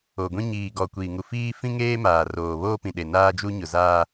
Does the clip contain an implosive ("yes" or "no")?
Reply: yes